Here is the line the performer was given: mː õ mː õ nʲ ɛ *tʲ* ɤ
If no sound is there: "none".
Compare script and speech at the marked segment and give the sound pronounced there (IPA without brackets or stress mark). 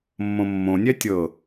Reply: tʲ